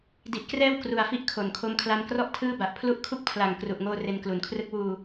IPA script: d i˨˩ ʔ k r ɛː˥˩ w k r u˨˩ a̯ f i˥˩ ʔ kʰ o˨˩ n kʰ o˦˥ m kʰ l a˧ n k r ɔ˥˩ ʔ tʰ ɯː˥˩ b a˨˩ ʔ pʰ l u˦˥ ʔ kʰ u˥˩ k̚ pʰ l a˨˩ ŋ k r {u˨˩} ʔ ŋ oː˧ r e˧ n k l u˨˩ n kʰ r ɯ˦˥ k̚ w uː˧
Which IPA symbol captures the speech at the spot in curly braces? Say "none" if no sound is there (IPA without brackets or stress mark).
u˨˩